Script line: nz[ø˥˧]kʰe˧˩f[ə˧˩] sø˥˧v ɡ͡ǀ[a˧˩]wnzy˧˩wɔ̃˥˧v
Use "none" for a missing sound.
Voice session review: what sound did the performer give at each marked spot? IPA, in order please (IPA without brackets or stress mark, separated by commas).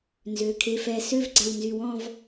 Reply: ø˩˧˩, ɛ˧˩, a˧˩